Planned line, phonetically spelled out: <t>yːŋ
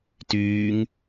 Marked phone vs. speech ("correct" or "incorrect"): correct